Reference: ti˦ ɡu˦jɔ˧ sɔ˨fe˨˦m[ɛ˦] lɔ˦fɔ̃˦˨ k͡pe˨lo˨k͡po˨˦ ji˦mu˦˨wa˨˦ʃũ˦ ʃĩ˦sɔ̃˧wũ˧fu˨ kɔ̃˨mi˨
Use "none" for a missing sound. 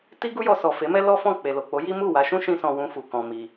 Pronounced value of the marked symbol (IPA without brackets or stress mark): ɛ˦